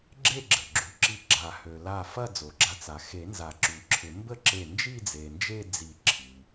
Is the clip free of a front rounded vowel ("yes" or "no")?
no